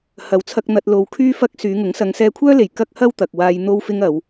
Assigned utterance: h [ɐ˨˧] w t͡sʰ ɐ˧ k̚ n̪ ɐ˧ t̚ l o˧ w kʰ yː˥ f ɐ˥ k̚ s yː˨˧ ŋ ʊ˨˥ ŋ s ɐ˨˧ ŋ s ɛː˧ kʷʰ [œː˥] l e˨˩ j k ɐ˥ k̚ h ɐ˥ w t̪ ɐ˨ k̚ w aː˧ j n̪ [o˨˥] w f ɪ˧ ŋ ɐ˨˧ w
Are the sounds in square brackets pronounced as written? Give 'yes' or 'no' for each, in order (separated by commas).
yes, yes, no